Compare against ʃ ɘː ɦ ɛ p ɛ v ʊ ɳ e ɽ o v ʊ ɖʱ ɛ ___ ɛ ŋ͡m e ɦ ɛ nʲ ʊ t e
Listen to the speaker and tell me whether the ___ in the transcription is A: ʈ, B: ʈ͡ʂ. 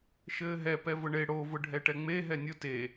A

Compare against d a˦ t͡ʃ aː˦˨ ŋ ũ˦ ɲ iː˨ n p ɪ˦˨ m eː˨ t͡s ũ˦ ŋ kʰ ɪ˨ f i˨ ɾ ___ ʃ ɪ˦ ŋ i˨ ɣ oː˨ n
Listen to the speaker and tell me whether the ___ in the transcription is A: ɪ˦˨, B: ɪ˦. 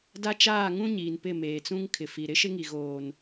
B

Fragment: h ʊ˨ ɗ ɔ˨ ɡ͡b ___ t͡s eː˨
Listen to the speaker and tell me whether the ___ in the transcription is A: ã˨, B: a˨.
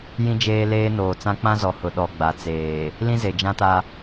B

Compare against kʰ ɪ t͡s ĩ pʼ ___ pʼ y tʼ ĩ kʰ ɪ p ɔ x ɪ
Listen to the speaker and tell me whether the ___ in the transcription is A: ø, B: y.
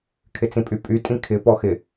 B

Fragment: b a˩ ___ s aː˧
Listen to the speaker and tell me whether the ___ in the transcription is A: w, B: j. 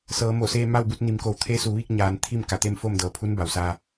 A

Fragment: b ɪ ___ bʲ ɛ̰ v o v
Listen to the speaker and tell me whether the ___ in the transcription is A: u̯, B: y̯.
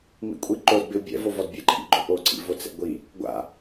A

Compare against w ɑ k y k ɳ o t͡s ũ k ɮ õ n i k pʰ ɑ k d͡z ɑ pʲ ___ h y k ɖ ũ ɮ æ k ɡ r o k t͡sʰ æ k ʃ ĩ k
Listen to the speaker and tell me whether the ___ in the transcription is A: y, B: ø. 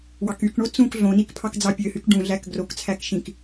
B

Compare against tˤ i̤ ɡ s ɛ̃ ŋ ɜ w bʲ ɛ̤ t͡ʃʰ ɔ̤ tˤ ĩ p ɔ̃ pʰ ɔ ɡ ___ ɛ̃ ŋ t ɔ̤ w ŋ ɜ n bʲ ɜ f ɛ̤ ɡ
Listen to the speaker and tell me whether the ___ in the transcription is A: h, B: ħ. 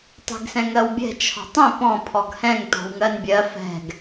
A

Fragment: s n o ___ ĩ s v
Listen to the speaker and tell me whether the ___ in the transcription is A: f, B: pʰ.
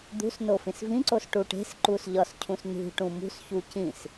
A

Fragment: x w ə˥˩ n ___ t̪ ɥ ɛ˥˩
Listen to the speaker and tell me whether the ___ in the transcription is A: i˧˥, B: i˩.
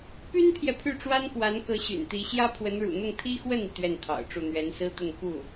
B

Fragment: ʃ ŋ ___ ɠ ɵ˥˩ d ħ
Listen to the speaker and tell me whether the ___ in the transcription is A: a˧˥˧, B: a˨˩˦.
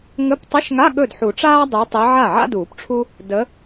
A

